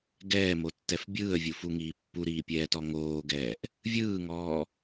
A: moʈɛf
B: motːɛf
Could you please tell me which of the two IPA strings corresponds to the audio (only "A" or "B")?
B